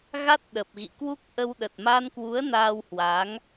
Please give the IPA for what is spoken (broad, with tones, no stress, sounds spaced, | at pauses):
ɣ a˦˥ t̚ ɗ ə˨˩ p̚ ɣ ḭ˧˨ k w u˦˥ k̚ ʔ ə˧ w ɗ ə˨˩ t̚ m a˧ n k w u˨˦ ə̯ n aː˧ w h w a˨˦ ŋ